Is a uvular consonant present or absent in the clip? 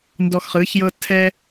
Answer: present